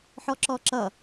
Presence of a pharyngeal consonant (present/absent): present